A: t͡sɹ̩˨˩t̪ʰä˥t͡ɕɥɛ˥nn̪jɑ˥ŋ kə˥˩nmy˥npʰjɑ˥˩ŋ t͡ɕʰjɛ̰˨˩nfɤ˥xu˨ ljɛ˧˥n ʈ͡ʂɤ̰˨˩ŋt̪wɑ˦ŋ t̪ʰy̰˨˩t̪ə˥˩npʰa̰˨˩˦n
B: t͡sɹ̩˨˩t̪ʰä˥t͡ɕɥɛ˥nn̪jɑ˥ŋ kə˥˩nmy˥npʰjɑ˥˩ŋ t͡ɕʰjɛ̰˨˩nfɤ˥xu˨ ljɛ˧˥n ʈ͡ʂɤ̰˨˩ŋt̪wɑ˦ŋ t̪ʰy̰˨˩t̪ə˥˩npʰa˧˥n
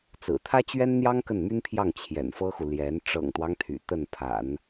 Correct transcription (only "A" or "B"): A